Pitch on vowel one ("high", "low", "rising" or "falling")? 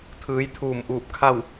rising